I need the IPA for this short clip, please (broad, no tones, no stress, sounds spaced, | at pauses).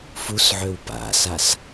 f u s ʕ ø w p a̰ s a s